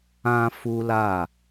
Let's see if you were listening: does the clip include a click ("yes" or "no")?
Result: no